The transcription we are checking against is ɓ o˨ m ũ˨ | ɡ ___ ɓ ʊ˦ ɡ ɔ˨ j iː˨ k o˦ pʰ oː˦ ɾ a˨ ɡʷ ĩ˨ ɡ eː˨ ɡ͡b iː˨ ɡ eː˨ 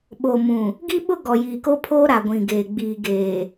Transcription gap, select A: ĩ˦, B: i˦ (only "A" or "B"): B